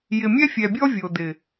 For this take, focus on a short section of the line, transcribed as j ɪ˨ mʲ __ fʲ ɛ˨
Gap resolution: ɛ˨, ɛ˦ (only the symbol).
ɛ˦